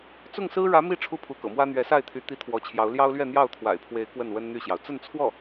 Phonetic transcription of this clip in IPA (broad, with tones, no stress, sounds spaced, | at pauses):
t͡s ʊ˥˩ ŋ s ɹ̩˥ ɻ ä˧˥ m i˥˧ ʈ͡ʂʰ u˥˩ pʰ u˧˥ k ɤ̰˨˩ m w ä˥ n̪ ɥ ɛ˧˥ s a˥˩ ɪ̯ t̪ʰ y˧˥ t̪ i˥ t̪ʰ w ɔ˧˥ t͡ɕʰ j ɑ˧˥ ʊ̯ l j ɑ˥ ʊ̯ l ɥ ɛ˥˧ n̪ j ɑ˥˩ ʊ̯ t̪ʰ w a̰˨˩ ɪ̯ pʰ w e˧˥ ɪ̯ k w ə˥˩ n w ə˥ n n̪ y˥˩ ɕ j ɑ˩ ʊ̯ t͡s ə˥˧ n t͡sʰ w ɔ˥˩